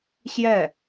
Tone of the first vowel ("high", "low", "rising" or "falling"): falling